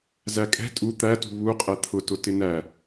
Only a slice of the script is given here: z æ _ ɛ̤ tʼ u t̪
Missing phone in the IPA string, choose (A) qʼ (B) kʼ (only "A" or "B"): B